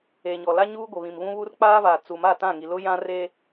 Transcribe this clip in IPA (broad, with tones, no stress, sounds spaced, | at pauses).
eː˨ ɲ ɔ˨ l a˦ ɲ uː˦ ɡʷ ɪ˨ β ĩ˨ m β ũ˦ β u˦ r k͡p aː˦ v aː˨ t͡s u˨ m a˦˨ t ã˦˨ ŋ i˨ l ʊ˦ j ã˦ r e˦